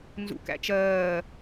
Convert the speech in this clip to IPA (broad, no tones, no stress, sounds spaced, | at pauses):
n z ṵ k æ̰ t͡ʃ ɜː